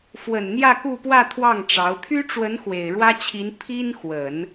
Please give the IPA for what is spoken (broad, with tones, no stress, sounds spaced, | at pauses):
f w ə˨˩ n n̪ j ä˥˧ k u˥˧ p w ä˥˧ t̪ʰ w ɑ˥˩ ŋ ʈ͡ʂ ɑ˧˥ ʊ̯ t̪ʰ y˥ ʈ͡ʂ w ə˧˥ n x w e˨˩ ɪ̯ ɻ w ä˥ t͡ɕʰ i˧˥ n pʰ i˥ n x w ə˨˩˦ n